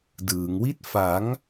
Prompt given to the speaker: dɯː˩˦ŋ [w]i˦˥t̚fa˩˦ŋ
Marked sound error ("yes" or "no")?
no